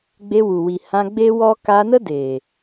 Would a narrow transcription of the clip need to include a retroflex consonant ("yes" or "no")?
no